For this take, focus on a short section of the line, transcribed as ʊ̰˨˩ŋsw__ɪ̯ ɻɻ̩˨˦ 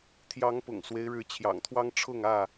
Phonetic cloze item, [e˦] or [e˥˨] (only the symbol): e˦